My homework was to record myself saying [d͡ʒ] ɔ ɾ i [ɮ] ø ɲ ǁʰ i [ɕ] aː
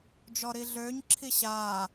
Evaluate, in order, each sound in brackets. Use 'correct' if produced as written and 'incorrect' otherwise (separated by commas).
correct, correct, correct